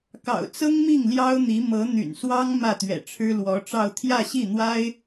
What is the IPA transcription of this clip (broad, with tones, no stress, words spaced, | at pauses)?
kɑ̰˨˩ʊ̯t͡sɤ˥ŋmi˥˩ŋ ljɑ˥ʊ̯n̪i˧˥ mɤ˧˥n̪y̰˨˩n swɑ˥ŋ mä˥˩t̪ɥɛ̰˨˩ʈ͡ʂʰɻ̩˥ lwɔ˧˥ʈ͡ʂɑ˥˧ʊ̯ t̪ʰjä˥˧ɕi˥˩n̪wa˥ɪ̯